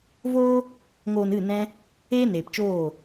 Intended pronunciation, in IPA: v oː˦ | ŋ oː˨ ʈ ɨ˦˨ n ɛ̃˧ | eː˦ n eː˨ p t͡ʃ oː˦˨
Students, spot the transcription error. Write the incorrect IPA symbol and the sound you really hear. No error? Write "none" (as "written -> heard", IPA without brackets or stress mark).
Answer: ʈ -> n